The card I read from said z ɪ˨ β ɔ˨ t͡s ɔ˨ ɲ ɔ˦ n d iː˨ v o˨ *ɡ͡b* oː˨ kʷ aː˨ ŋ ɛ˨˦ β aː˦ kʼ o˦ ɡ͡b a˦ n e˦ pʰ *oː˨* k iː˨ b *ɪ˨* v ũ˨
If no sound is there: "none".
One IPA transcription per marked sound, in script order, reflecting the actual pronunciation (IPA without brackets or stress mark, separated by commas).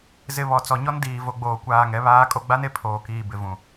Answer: ɡ͡b, oː˨, ɪ˨